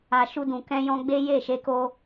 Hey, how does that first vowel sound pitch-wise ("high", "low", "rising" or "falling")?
low